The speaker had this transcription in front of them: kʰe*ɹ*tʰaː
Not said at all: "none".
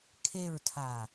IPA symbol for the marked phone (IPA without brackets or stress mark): ɹ